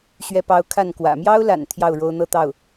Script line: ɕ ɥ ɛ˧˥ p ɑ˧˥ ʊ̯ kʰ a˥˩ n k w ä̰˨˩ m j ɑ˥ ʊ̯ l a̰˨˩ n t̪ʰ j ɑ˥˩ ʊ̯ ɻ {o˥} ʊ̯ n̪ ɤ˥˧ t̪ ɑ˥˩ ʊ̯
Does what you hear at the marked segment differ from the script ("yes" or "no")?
no